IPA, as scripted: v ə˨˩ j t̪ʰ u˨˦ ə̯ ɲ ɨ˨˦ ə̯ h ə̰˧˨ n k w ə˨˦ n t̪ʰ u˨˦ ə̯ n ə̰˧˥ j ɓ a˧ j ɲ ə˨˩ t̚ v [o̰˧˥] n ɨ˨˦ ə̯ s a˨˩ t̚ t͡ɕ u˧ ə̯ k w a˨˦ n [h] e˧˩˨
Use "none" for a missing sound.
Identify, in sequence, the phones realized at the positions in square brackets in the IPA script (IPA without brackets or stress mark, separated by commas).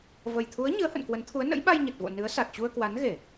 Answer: o̰˧˨, ɣ